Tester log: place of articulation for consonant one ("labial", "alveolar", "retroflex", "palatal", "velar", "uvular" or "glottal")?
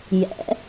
palatal